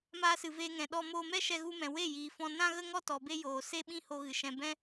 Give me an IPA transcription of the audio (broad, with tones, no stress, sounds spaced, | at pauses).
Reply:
m aː˧ s ɨ˨ v eː˧ ŋ ɛ̃˨ ɗ ɔ˧ m oː˧ m ɛ˦ ʃ ɛ˧ ɣ u˧ m ɛ̃˨ w e˦˨ j iː˨ f ɔ̃˧ n ã˦ ɣ ə˦ ŋ ɔ˦ t ɔ˨ b e˧ j oː˨ s e˦ ɓ ĩ˦ h o˧ ɣ ɨ˨ ʃ ɛ̃˧ b ɛ̃˦